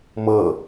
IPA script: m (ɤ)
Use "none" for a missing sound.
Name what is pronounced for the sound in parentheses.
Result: ɤ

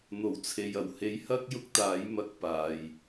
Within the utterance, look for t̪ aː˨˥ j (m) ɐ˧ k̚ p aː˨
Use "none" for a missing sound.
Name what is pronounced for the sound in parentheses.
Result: m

